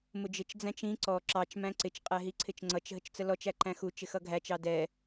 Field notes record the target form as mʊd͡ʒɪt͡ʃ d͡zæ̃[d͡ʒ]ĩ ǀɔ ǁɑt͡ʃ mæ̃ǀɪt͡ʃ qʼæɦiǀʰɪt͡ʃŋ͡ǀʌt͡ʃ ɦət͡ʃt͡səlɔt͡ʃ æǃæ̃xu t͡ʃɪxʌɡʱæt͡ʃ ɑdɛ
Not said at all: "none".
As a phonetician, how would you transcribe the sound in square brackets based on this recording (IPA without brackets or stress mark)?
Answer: t͡ʃ